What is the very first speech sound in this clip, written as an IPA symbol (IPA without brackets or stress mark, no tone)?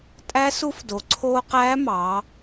tʼ